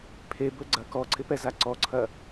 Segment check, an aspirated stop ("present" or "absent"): present